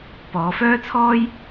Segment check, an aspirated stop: present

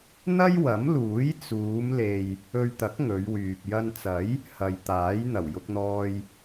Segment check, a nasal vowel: absent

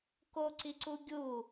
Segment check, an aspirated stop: absent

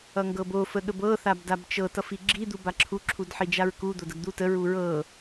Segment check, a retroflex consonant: absent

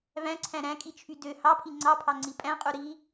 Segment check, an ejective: present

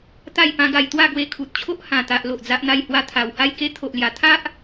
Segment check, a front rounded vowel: absent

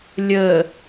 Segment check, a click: absent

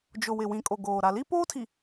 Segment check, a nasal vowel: present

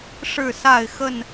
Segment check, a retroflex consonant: present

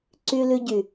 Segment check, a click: present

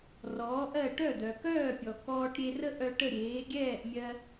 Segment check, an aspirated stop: absent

